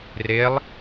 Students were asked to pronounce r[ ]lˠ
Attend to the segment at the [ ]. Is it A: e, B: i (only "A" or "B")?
A